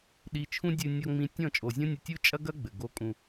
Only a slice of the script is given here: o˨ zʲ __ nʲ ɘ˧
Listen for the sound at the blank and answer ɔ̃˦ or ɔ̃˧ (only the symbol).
ɔ̃˦